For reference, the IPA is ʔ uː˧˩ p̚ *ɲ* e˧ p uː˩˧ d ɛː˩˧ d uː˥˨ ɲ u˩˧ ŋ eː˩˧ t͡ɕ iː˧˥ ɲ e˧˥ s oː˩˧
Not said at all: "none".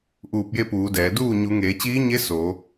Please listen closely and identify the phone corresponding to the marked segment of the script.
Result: j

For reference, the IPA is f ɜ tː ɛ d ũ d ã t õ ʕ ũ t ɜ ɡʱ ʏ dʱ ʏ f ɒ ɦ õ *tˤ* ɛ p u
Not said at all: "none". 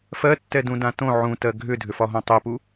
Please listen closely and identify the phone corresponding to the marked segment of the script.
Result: tˤ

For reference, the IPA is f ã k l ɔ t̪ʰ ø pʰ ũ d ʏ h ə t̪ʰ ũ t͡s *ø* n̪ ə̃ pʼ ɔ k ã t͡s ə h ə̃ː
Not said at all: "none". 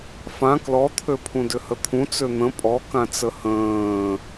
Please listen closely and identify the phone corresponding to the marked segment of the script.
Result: ø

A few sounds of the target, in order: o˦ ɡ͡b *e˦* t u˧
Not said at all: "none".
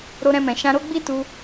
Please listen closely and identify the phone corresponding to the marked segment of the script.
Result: i˦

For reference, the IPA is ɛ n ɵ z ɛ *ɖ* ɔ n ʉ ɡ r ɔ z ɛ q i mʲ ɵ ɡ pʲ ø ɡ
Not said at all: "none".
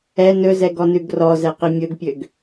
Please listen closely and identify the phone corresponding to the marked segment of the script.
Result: ɡ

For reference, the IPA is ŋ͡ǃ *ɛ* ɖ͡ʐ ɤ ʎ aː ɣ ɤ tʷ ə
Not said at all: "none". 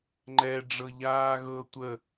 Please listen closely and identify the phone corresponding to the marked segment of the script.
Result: ɛ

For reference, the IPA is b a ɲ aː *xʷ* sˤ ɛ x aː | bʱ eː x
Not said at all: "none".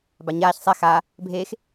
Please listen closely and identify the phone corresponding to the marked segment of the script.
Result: ç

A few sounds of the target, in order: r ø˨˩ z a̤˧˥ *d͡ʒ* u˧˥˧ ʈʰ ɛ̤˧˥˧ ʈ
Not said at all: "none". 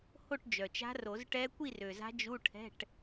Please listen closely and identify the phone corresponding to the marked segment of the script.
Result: d͡ʒ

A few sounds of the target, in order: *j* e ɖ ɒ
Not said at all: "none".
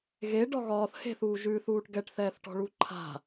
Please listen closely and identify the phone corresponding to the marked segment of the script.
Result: ɣ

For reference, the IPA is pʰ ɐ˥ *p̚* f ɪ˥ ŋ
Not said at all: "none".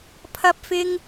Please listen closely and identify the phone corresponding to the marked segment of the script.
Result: p̚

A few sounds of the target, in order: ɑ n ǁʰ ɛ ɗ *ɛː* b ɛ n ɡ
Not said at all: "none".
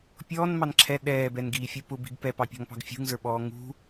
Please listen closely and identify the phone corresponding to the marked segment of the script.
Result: ɛː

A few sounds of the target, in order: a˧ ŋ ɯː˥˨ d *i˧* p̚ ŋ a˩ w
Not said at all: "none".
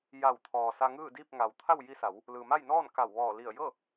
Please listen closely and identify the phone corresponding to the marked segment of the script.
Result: i˥˨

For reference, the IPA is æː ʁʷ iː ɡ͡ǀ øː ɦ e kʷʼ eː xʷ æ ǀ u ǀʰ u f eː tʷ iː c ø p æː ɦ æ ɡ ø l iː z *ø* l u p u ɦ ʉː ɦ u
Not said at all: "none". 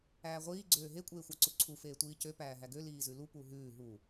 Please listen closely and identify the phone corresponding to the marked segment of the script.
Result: ʉ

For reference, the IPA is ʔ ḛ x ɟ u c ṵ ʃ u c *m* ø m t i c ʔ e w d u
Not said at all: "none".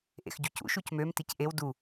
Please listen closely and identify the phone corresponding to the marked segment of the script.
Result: m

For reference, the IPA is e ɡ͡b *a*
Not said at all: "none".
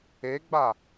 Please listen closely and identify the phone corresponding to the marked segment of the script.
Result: a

